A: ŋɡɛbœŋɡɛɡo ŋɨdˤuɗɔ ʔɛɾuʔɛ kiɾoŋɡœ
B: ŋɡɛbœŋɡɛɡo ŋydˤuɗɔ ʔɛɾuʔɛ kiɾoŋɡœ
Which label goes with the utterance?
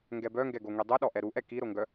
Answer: B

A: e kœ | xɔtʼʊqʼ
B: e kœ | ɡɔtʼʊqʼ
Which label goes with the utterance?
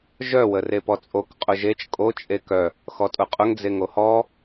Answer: A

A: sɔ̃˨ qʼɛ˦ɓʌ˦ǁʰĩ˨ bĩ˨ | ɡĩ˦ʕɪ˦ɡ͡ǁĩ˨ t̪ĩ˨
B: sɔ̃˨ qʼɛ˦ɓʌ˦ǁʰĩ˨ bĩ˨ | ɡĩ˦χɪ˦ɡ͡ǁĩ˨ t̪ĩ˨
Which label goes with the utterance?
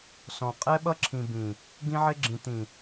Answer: A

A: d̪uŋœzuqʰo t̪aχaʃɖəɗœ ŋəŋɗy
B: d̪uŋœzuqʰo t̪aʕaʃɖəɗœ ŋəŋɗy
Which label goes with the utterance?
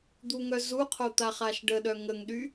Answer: A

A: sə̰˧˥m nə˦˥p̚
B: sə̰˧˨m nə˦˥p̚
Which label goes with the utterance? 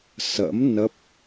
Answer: A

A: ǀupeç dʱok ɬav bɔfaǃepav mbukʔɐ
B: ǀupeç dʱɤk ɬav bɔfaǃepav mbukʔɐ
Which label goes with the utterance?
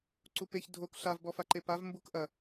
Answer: A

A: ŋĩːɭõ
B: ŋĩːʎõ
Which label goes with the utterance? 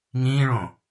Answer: A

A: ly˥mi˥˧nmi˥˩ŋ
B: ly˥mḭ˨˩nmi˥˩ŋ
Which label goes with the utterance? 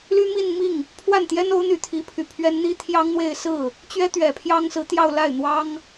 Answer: A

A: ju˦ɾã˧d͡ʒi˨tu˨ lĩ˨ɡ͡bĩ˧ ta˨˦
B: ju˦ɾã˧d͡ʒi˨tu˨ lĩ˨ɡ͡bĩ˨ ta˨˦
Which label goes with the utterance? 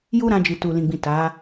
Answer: B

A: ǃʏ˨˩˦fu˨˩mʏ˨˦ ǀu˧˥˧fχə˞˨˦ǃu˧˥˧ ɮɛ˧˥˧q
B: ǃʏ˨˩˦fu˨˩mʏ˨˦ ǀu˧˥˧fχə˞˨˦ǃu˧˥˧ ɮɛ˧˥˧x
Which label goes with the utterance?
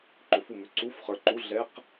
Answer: A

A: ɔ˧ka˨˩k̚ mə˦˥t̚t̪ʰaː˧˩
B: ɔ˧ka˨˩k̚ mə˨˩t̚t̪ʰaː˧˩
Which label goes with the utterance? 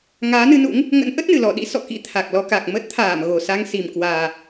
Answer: A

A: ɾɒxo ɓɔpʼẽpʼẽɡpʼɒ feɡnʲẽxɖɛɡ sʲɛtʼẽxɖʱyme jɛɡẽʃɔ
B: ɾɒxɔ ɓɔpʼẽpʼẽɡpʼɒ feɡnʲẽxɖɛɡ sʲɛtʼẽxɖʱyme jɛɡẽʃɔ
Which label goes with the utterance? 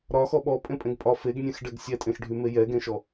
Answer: B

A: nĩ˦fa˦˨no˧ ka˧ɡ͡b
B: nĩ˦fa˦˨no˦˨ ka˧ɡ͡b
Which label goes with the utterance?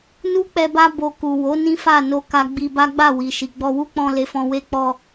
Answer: A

